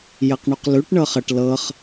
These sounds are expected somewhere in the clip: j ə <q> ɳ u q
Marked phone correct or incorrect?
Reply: correct